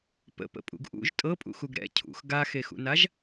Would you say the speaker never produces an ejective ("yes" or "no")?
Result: no